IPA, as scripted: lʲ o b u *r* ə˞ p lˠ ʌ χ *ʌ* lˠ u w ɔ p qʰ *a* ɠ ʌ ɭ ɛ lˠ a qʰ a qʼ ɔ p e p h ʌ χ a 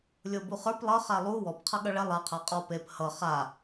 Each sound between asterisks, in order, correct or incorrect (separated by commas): incorrect, incorrect, incorrect